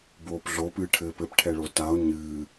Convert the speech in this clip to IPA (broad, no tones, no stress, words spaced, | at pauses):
boːpɮo pɨːʈʰɘːpɘp ʈʰɛɭotao̯ ɲɨː